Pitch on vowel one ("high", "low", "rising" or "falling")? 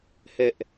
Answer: high